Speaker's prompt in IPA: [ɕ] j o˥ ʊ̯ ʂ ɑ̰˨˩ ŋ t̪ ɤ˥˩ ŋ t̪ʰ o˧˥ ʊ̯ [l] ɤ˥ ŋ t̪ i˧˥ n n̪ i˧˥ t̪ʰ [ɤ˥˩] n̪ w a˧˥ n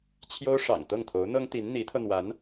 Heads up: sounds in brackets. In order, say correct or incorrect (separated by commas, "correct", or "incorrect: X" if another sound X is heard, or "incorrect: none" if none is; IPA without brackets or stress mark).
incorrect: t͡ɕʰ, incorrect: n̪, incorrect: ɤ˧